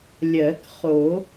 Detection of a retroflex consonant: absent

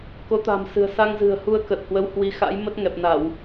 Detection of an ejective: absent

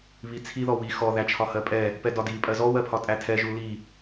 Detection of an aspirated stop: present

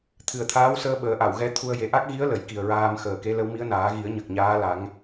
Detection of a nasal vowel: absent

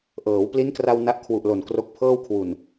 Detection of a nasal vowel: absent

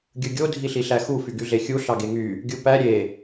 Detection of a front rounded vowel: present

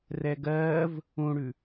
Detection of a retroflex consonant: present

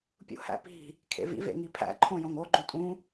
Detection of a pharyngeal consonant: absent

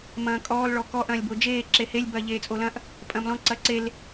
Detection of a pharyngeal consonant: absent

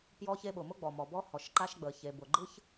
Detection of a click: present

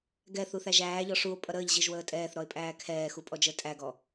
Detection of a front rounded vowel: absent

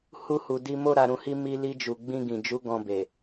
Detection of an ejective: absent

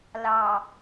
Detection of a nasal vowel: absent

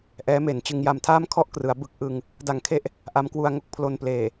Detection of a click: absent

